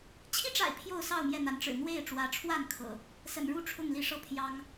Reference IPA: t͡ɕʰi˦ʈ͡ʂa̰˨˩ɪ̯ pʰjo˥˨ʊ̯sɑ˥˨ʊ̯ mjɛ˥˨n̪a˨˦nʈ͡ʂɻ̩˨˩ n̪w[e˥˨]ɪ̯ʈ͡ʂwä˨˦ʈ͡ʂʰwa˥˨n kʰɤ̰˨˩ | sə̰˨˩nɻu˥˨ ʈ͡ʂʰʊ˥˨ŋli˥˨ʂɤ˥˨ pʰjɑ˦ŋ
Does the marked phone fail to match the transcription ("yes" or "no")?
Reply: no